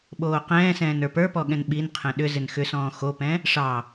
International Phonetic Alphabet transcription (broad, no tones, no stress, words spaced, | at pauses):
ɓoːqɛ̃ːsɛ̃ːn ə˞pə˞pɔ ɠɛ̃nɓinqʰɛ̃ ɗʏ zɪnxʏsɔ̃ː xopɛ̃ | ʂɑ